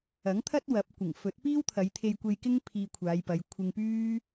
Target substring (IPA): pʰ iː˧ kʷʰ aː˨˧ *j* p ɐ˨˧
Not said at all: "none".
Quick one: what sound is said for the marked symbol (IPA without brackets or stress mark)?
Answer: j